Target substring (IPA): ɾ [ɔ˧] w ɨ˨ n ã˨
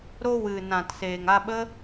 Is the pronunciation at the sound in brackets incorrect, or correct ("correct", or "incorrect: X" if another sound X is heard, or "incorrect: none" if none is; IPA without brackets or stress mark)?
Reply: incorrect: o˧